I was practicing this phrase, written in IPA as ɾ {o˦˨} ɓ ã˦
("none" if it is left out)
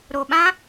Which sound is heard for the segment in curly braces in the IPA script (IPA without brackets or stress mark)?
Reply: o˨